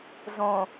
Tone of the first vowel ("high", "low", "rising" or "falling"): low